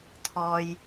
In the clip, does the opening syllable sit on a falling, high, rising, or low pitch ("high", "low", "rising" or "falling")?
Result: low